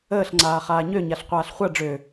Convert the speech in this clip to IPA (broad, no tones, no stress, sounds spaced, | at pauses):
əː ɬ ŋ͡ǀ aː χ aː ɲ ø ɲ a ɬ qʷ aː ɬ χʷ a ɖ͡ʐ ø